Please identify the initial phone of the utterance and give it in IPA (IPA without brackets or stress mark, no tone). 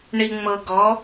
ɳ